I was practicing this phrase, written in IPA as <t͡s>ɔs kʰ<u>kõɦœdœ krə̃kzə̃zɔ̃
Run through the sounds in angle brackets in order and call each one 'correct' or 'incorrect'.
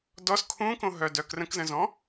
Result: incorrect, incorrect

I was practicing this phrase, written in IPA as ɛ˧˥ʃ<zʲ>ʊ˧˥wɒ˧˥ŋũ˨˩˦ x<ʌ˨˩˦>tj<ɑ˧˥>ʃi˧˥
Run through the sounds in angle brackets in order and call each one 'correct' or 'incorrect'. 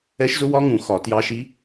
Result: incorrect, incorrect, correct

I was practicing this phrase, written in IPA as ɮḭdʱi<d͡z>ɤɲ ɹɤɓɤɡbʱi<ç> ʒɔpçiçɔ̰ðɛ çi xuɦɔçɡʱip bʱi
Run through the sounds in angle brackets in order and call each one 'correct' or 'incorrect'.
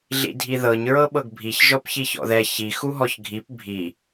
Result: incorrect, correct

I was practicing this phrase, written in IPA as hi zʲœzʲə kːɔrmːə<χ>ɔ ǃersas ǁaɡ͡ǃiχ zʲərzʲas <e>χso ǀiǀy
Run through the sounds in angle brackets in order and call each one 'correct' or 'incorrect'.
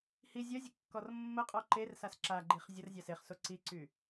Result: incorrect, correct

